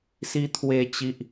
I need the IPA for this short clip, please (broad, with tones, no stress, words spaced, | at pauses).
si˦ t̪ʰwe˦t͡ɕi˦ʔ